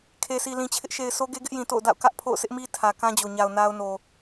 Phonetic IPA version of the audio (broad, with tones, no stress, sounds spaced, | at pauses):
kʰ e˨ s i˨ l ĩ˨ t͡ɕʰ ɪ˦ ʔ ʃ e˨ ɪ̯ sʰ o˦ ɡ e˦ ɡ ɪ˦ ʔ j ĩ˨ t o̰˦˨ ʊ̯ d a̰˦˨ ʊ̯ k ä˦ ʔ pʰ o̰˦˨ ʊ̯ sʰ ɪ˦ ʔ m i˦ tʰ ä˨ k ã˦ d͡ʑ o˨ ɲ a˨ ʊ̯ n a˦ ʊ̯ n o˨